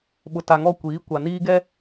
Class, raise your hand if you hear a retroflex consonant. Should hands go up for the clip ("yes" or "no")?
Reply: no